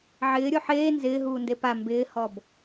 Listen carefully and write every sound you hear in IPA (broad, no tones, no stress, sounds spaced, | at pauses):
ʕ ɪː ɾʲ o ħ eː n z ɪː ɦ uː n d e p a m b ɪː h ɔ b